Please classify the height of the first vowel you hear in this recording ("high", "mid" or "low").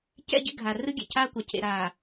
mid